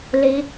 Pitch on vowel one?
rising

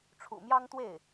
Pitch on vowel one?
low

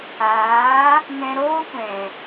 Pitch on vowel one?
rising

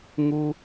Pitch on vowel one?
high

